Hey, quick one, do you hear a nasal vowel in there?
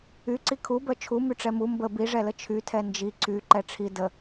no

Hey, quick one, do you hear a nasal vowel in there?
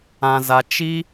yes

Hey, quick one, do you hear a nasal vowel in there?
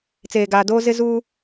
no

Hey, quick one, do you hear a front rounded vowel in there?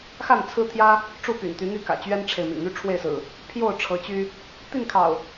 yes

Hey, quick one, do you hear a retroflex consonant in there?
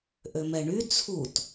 yes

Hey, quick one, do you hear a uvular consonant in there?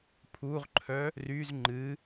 yes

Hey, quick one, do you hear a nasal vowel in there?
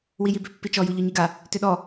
no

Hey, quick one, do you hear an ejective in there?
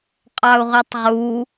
yes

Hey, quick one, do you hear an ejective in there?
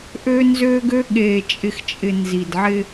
yes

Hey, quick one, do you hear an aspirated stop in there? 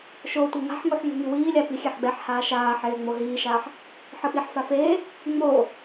no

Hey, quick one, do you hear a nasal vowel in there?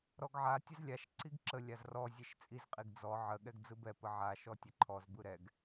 no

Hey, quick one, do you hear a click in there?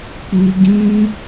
no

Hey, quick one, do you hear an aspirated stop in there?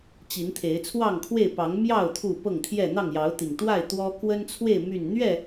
yes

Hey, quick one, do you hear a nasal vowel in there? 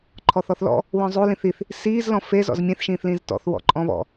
yes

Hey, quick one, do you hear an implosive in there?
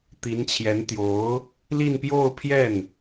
no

